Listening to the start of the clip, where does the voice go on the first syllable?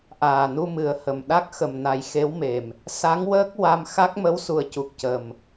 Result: low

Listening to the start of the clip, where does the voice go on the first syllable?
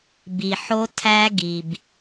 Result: low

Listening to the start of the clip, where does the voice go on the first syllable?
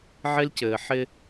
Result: high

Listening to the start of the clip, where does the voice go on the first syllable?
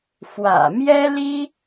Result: low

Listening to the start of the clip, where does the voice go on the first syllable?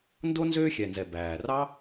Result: high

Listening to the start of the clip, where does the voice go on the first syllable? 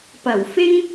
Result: low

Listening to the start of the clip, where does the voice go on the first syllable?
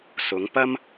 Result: rising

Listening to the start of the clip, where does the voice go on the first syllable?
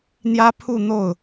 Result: high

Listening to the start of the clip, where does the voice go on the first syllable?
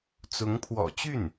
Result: rising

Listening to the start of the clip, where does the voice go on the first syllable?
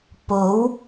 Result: rising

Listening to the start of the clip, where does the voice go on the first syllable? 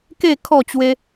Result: falling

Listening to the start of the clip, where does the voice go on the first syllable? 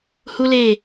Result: high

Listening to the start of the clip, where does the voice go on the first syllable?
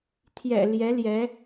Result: low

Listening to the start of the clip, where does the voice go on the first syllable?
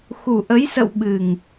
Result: low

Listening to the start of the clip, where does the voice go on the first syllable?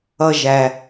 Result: low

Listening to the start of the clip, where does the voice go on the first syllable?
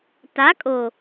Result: rising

